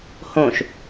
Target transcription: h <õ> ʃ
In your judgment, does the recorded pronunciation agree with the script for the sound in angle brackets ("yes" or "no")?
yes